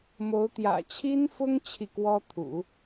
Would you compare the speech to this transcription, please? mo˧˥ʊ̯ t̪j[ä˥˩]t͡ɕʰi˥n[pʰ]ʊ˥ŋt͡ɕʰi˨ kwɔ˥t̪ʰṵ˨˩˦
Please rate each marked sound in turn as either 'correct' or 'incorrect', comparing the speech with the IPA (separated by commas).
incorrect, incorrect